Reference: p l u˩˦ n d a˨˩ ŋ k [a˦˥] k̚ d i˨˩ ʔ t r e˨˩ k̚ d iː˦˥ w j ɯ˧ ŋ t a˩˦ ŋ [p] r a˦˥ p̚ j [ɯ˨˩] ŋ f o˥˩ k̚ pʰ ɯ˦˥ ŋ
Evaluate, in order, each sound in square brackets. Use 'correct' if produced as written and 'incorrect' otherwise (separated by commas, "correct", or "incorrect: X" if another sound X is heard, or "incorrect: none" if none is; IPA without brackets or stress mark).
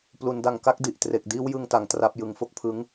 correct, incorrect: t, correct